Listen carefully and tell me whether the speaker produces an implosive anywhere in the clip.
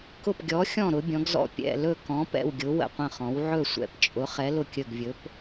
no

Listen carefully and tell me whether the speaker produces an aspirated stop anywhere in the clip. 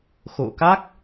no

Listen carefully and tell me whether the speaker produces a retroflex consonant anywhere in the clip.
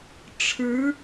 yes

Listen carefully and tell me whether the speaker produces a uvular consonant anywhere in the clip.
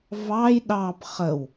yes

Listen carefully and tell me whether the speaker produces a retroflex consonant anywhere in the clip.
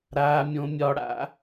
yes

